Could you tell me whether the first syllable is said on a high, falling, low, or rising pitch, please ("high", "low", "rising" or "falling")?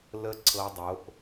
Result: high